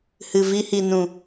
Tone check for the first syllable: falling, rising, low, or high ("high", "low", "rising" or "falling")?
low